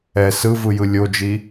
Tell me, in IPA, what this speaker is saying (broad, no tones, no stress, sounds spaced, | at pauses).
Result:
ɛ s ɯ v ɯ j ɯ lʲ o d͡ʒ i